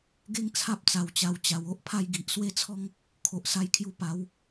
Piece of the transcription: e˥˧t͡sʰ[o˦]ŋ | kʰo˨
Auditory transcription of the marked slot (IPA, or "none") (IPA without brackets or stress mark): ɔ˦